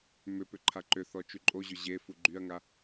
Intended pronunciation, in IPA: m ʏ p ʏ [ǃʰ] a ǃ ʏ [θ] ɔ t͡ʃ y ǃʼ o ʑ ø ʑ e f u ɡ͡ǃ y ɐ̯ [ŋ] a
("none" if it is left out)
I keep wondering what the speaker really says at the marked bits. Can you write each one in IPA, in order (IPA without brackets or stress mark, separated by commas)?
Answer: ǃʰ, θ, ŋ